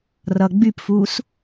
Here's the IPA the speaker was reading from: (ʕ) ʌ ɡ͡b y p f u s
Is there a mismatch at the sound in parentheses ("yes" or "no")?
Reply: yes